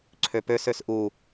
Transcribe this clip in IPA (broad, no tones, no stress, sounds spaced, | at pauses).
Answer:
ǀʰ ø p ø s ø s ʔ u